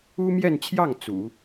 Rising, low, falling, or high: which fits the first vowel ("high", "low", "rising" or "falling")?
high